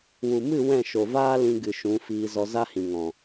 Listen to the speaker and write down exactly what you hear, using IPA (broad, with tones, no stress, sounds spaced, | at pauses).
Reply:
w u˨ m ɨ˦˨ w ɛ̃˦˨ ʃ o˨ v aː˦ l ĩ˧ ɡ ɨ˨ ʃ ũ˨˦ f iː˧ z ɔ˧ z a˦ h ĩ˨ ŋ ɔ̃˨